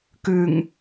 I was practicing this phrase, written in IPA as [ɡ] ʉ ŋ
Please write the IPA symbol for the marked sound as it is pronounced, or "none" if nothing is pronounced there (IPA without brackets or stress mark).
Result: k